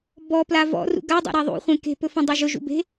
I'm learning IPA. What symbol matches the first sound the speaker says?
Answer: b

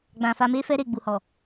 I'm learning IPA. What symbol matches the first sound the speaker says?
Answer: ɡ͡b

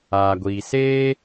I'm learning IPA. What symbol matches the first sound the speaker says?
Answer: aː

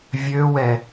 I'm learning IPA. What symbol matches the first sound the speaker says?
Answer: vʲ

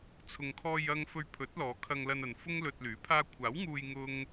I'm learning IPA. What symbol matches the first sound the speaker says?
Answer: t͡sʰ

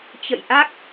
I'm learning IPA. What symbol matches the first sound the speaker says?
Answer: t͡ɕ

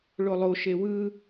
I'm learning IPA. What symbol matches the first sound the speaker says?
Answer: ɭ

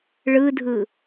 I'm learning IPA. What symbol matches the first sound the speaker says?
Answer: ɭ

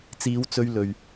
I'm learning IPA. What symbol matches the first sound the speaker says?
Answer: t͡s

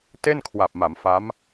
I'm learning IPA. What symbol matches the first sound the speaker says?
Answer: t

